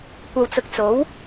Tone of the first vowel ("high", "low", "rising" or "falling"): low